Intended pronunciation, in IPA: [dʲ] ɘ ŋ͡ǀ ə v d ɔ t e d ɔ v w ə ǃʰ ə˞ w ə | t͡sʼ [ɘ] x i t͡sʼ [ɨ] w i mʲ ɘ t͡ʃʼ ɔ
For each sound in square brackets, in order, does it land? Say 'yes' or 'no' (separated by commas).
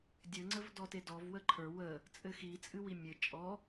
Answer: yes, yes, yes